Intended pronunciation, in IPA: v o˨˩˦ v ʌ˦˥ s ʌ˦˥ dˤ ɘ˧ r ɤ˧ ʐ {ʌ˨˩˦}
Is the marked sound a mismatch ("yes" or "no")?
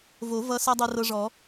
yes